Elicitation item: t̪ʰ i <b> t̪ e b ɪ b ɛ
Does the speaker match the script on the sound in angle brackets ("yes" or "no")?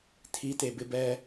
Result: no